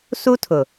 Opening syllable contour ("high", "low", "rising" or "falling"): high